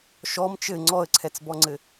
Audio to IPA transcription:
ʃɔm t͡ʃɘ ŋ͡ǀɔə̯ǀʰɛt͡sbɔŋ͡ǀɘ

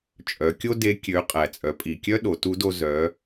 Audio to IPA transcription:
t͡ʃʼœ˩˧kʲo˥de˧˥ kʲø˩˧ qʼæ˩t͡sʼœ˩˧pʼi˩kʲœ˥ ɗo˩˧tu˧˥do˧ zœ˩˧

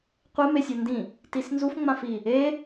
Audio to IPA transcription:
qʷemesʲɔ ndĩ | tisnzuf ŋ͡mãfi | e

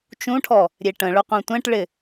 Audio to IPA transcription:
t͡ʃũʈʰɔ | ɾʲeʈə̃ɭɵ qʷẽtʷɛ̃ʈɭɪ

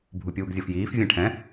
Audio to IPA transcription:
bʱupʲuːɡzʲɤfjiːf vʲɛ̃ʈʰɛ̃

